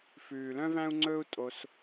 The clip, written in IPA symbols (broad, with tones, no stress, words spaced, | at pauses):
fʉː˨lœ̃˦væ̃˦u̯ŋ͡ǀɵː˦u̯ tʼo˧s